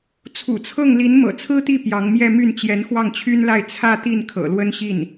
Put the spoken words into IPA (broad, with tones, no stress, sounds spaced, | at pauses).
t͡sʰ ṵ˨˩ t͡sʰ ɤ˥˩ ŋ l i˧˥ n m ɤ̰˨˩ t͡sʰ ɹ̩˥ t̪ i˥˩ p j ɑ˧˥ ŋ m j ɛ˥˧ m y˥˩ n t͡ɕ j ɛ˧˥ n x w ɑ˥˩ ŋ t͡ɕʰ y˥ n l a˥˧ ɪ̯ t͡sʰ ä˥˧ t̪ i˥˩ n kʰ ɤ̰˨˩ l w ə˥ n ɕ i˥˩ n